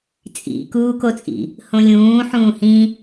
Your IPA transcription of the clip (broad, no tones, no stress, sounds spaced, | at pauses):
t͡sʼ ḭ k uː k o t͡sʼ ḭ | h õ lʲ ũː ħ ũː h ĩ